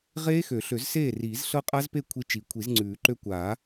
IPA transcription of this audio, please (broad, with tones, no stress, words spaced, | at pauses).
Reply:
ʁeː˦˥xø˨˩˦ ɬø˨˩˦zseː˥˩riː˨˩˦z ɬɤ˦˥qʼa˦˥zpe˥˩ kʷʰi˦˥t͡ʃi˨˩˦ kʷʰi˨˩˦zŋ͡ǀʉː˨˩˦ǃø˦˥ kʷaː˨˩˦